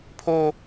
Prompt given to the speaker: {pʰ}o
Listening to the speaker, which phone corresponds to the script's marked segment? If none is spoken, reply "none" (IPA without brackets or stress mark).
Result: pʰ